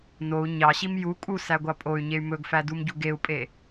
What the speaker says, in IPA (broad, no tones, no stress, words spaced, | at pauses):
nou̯ ɲɑɕim ju kʼusæɡʷɑ pʼoy̯ɲey̯ mɵɡfædumɟu ɡeu̯pʼe